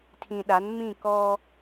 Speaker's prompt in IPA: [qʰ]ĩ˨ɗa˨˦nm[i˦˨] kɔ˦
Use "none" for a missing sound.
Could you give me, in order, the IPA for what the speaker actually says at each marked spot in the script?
tʰ, ĩ˦˨

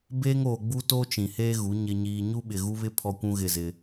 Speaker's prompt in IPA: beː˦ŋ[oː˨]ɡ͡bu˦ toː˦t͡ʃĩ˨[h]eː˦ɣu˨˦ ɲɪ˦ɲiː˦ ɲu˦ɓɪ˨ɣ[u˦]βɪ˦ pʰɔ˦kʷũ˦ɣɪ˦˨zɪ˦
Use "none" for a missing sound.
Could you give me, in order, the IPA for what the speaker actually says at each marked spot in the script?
oː˨, h, u˦

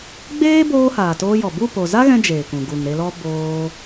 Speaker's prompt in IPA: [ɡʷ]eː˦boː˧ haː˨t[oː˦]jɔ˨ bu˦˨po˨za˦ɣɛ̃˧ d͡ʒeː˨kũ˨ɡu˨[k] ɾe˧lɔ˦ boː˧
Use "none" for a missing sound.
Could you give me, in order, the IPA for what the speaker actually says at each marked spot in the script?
ɡ͡b, oː˧, ŋ

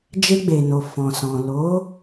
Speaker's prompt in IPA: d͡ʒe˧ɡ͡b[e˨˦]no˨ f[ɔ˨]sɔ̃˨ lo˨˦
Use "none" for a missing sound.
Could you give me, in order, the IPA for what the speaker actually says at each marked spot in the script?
e˨, ɔ̃˨

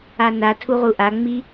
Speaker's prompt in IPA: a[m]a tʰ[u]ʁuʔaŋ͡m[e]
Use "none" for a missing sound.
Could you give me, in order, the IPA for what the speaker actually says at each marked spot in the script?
n, u, i

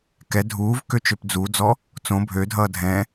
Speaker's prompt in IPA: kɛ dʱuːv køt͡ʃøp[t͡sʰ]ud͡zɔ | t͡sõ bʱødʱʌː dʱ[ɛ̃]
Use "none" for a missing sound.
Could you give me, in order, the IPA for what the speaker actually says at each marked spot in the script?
d͡z, ɛ̃

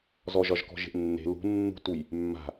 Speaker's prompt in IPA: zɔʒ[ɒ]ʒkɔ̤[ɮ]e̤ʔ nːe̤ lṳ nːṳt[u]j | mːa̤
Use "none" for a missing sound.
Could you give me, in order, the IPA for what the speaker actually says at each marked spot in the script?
ɒ, ʒ, u

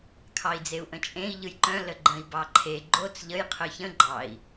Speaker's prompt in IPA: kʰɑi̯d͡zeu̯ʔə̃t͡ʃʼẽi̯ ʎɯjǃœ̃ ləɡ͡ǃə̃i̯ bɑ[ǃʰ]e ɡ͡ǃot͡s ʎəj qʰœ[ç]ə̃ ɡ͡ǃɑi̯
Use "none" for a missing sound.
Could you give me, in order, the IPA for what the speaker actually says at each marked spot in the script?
ǃʰ, ç

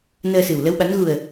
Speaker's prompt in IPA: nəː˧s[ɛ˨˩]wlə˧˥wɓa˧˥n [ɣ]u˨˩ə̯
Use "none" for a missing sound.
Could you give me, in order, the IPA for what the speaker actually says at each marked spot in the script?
ɨ˨˩, ɣ

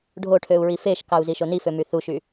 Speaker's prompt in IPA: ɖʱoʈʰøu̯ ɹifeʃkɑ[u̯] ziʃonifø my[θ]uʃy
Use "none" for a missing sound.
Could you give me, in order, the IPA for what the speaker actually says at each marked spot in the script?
u̯, θ

